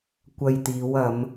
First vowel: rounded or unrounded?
unrounded